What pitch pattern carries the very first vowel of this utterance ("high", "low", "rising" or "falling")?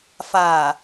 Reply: low